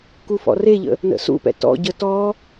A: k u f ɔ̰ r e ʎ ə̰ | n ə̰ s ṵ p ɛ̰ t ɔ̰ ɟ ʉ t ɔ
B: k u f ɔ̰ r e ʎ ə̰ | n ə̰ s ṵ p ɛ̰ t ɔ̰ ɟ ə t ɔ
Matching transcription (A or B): B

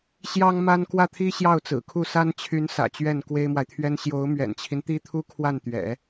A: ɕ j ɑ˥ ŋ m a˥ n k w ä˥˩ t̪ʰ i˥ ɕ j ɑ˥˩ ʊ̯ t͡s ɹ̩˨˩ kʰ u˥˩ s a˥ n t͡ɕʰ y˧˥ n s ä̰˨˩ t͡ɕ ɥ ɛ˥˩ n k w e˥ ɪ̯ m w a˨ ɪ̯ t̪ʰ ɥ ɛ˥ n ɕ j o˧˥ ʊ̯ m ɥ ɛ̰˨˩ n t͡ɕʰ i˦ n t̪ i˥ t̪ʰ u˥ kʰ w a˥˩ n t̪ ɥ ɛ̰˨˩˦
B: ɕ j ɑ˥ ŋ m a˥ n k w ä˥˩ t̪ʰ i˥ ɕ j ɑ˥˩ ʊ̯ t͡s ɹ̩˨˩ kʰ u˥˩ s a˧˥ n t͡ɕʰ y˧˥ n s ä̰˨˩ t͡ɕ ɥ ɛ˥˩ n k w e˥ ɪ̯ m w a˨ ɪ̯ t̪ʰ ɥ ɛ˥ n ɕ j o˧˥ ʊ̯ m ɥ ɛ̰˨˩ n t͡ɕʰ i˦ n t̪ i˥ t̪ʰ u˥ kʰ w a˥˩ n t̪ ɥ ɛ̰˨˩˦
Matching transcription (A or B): A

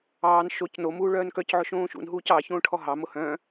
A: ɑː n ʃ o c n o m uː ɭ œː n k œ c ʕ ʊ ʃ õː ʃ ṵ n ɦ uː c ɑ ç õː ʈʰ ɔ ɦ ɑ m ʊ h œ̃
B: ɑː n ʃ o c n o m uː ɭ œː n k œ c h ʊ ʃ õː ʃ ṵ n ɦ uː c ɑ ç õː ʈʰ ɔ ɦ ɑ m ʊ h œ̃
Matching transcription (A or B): A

